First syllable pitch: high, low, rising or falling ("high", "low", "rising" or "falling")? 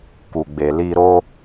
low